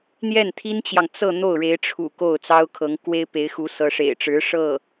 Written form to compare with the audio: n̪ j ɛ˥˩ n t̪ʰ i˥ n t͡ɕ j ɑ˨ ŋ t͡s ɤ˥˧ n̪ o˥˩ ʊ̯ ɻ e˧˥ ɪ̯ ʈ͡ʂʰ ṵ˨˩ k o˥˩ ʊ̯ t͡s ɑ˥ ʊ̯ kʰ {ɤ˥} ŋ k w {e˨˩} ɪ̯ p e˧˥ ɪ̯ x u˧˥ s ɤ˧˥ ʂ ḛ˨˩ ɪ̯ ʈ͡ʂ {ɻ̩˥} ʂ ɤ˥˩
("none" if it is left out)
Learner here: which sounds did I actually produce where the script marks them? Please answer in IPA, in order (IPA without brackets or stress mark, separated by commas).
ɤ˧˥, e˥, ɻ̩˧˥